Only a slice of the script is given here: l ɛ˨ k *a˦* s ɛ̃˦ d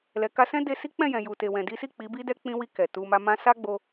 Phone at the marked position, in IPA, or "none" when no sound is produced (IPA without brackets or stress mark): a˧